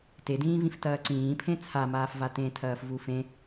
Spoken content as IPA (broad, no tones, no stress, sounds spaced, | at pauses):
t e d ĩː v ĩ f t ɐː ǀ ĩː pʰ ẽ t͡sʰ a m aː f v a t ẽ tʰ ɐː f v u f ẽ